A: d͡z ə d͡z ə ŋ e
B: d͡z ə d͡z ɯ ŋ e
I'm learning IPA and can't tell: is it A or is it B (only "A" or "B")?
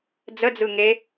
B